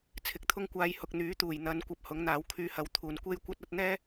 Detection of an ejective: absent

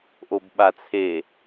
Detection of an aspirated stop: present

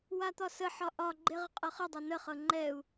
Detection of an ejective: present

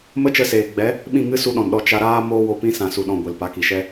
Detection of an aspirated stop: absent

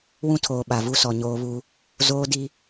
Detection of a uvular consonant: absent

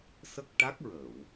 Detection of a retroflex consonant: present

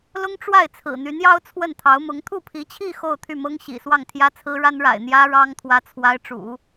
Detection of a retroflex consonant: present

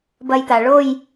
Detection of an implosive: absent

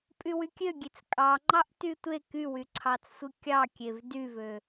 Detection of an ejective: present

